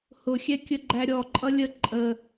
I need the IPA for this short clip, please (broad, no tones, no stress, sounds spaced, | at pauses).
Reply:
h ʊ xʲ ɛ kʲ ə ɡ͡ǃ æ ɾʲ ɔ ǃʼ ʌ lʲ ə ǃʼ ə